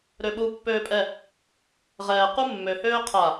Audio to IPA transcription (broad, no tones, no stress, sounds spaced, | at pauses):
ɾ ø ɓ u pː øː pʼ ɛ | ʁ ɛː q u mː ø h øː qʰ a